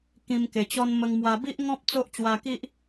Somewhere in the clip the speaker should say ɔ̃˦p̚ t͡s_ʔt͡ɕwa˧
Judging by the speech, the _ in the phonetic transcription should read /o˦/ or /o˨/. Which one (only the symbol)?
o˦